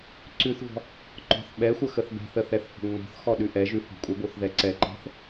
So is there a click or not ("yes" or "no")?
yes